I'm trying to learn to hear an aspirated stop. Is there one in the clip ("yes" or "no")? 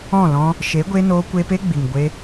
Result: no